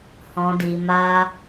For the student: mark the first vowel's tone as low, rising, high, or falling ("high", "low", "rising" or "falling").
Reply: low